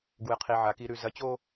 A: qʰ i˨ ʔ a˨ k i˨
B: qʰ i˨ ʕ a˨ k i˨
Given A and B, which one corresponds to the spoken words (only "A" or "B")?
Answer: B